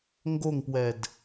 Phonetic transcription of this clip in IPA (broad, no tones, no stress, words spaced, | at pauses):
ŋɡoŋpwɛd